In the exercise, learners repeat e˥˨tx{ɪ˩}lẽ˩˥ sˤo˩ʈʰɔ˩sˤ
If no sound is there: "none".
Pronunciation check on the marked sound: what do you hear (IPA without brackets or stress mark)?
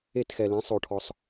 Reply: ɛ˩